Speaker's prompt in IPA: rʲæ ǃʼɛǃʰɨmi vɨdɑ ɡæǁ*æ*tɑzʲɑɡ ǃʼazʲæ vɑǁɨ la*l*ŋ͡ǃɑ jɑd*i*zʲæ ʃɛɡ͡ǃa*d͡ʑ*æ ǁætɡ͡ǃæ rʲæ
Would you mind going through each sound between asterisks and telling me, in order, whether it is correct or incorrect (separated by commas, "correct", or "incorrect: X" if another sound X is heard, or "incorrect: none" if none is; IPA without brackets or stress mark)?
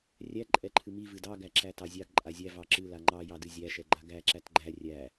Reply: correct, incorrect: none, incorrect: ɨ, incorrect: ɡ